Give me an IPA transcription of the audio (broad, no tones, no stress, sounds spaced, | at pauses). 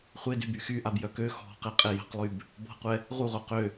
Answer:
χʷ e d y b y x y ʔ a b j œ k ø x ɔ̤ q e qʼ e j ə̤ q lˠ y b | b ɔ̤ qʷ ɛ | ʁ u ʁ o q ø